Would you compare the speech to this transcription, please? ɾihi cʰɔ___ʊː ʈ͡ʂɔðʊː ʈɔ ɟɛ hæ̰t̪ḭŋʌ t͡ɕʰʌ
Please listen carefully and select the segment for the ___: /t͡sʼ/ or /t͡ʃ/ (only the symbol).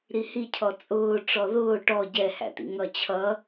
t͡sʼ